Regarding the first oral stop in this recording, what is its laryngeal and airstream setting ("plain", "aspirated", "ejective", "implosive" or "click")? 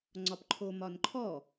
click